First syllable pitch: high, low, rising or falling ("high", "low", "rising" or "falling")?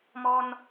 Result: high